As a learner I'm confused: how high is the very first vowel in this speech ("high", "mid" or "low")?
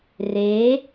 mid